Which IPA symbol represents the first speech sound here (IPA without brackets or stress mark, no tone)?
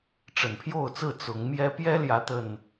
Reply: ʈ͡ʂ